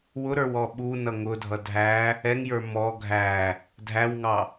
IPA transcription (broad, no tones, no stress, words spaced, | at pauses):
wʊɾə˞w ɔɓunʌ ŋʊdʱʌ dʱæ | ɛŋjə˞ mɔ ɡʱæ | dʱæwŋɑ